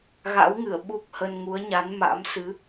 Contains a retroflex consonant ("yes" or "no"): no